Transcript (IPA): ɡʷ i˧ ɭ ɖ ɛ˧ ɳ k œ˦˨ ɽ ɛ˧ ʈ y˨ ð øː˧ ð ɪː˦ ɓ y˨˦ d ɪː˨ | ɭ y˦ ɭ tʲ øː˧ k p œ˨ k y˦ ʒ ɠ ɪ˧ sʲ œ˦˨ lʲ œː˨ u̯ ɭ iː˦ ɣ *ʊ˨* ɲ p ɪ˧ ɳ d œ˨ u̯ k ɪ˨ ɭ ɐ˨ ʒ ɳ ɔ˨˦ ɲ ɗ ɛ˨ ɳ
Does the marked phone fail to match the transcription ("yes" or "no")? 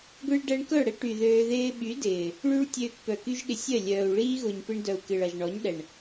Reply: no